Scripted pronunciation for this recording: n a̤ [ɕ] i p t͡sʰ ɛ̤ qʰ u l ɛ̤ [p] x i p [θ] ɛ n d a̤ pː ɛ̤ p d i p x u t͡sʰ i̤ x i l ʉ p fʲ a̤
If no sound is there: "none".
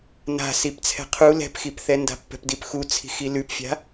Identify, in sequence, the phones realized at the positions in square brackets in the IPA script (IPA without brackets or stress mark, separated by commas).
s, p, θ